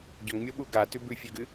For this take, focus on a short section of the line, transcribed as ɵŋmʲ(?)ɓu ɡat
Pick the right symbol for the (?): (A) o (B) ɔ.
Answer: A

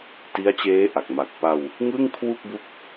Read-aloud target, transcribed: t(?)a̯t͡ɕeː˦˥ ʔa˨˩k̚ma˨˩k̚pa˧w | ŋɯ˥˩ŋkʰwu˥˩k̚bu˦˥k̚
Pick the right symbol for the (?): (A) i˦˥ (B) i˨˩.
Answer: A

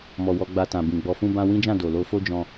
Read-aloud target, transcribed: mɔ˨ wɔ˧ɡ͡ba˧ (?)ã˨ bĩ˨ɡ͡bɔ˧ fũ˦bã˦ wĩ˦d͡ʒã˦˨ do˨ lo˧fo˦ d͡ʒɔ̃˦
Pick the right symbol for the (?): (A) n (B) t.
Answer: B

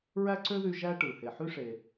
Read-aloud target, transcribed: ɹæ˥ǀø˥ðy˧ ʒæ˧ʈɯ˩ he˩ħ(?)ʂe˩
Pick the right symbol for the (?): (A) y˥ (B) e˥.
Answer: A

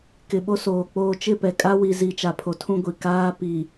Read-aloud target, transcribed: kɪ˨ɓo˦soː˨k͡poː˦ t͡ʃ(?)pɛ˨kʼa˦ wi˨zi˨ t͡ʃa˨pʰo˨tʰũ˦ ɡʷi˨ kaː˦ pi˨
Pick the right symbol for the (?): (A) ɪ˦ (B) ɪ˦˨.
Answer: B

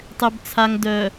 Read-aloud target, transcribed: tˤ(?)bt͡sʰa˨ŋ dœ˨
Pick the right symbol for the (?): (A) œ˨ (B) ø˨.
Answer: B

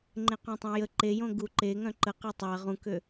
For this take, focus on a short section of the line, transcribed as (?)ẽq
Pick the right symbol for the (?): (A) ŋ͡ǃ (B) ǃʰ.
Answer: A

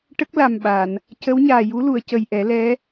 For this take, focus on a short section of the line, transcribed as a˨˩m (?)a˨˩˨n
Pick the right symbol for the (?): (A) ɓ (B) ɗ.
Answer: A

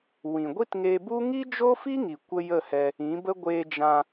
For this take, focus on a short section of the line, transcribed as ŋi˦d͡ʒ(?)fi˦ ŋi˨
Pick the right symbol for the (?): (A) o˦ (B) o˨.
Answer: A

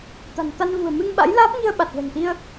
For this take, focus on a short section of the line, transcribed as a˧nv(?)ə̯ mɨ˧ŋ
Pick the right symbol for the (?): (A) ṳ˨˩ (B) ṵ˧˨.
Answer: A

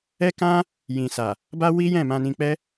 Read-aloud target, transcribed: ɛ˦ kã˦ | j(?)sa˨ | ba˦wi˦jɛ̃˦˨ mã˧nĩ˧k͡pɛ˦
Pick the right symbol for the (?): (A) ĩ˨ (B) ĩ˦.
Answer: A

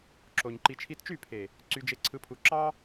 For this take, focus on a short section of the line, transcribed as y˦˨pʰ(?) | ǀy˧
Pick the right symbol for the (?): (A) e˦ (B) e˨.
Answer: B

